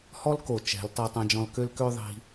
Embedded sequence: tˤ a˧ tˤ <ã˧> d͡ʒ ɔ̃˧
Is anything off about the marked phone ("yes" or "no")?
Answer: no